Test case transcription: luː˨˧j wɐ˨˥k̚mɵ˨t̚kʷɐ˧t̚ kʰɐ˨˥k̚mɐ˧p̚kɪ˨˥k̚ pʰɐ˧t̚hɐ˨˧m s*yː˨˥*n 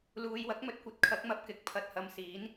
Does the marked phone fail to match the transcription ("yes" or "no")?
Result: yes